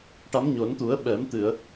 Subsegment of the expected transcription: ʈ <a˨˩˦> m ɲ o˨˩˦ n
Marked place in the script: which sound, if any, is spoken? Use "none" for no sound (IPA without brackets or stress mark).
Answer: a˧˥